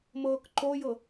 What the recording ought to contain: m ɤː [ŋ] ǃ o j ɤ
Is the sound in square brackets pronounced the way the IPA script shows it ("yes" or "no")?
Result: no